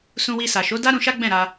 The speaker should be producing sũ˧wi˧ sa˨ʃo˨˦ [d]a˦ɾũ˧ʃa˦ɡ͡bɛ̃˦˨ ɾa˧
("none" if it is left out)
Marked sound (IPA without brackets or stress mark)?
d